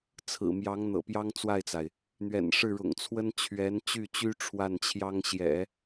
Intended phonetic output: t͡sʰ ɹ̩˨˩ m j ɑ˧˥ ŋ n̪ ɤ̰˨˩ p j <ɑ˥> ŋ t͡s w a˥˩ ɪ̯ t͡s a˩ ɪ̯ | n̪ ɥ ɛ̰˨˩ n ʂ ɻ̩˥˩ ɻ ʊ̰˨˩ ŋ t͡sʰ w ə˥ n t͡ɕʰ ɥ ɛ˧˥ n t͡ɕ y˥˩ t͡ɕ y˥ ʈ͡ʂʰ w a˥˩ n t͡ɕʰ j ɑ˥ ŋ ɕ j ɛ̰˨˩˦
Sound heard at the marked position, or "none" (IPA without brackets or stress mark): ɑ˥